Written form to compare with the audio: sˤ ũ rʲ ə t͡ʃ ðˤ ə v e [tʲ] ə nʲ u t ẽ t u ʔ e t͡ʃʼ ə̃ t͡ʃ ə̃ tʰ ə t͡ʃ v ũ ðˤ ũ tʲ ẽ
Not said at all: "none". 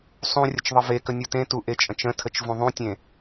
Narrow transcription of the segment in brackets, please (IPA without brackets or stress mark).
k